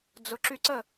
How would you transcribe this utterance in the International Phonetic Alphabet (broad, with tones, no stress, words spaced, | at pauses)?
d͡zʊ˨ ǁy˧ǀə˦˨